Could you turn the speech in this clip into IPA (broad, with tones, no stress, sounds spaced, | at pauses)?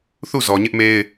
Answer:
θ u˦˨ z ɔ˨ ɲ ɪ˦ ʔ m e˦ ɪ̯